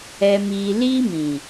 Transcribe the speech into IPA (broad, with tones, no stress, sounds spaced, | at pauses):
ɛ˧ m iː˧ l iː˦ m ĩ˨